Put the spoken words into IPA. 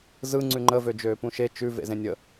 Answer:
zɯ ŋ͡ǀʉŋ͡ǃə vød͡ʒøːpũʃe t͡ʃʉ vḛzẽnʲə

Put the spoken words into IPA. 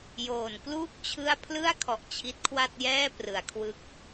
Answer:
joː˨˩nkluː˥˩k̚ t͡ɕʰɯ˥˩a̯ pʰlɯ˥˩a̯kʰɔ˨˩ʔ t͡ɕʰi˦˥t̚kʰwa˥˩t̚jɛː˥˩ prɯ˩˦a̯kʰwɯ˦˥k̚

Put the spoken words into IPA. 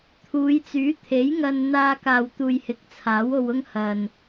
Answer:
t̪ʰuː˨˧jt͡syː˨˥ t̪ʰe˨˥jŋɐ˧n n̪aː˧ kaː˨wt̪uː˨j hɪ˨˥k̚t͡sʰaː˨˥wo˧w ʊ˧ŋ hɐ˨n

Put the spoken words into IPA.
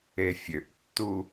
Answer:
efʲøʔtːu

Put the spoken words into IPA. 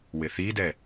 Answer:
wɪθidɛ

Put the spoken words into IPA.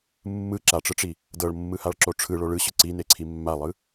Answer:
mːɯ ǁaʈ͡ʂɯʈ͡ʂi | dɤɭmːɯhaɭǁo ʈ͡ʂʰɯɭo ɭɯɕɯ ǀineǀʰi mːalˠɯ

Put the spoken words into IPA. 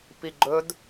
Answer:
piɡ͡ǃɵd

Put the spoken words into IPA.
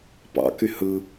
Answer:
pɑ̰ky hɯ

